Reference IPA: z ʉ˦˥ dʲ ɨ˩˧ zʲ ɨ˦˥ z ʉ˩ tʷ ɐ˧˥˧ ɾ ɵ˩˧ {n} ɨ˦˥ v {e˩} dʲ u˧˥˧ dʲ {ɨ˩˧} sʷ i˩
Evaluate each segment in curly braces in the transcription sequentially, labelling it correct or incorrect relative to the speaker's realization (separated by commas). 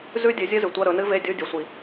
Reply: correct, incorrect, correct